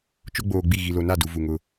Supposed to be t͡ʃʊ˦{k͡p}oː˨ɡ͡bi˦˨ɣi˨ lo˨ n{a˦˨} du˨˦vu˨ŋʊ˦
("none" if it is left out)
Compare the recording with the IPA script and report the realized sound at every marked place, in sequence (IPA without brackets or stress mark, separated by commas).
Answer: ɡ͡b, a˦˨